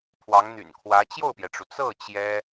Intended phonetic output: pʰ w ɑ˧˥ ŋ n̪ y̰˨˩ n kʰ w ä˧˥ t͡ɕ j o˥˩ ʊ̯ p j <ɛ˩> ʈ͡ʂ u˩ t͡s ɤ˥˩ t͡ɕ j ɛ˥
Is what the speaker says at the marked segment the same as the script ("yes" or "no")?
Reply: yes